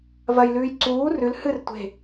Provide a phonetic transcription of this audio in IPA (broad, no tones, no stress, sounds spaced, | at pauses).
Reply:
v ɐ j l ʉː j ǀ uː r ʉ l h ɨ r tʷ e̤